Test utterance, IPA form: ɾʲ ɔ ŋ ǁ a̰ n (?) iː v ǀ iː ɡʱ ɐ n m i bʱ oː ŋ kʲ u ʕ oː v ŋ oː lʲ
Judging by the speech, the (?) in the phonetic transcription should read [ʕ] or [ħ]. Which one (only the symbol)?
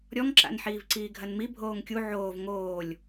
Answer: ħ